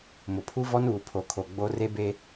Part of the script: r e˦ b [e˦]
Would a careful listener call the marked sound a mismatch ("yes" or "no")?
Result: no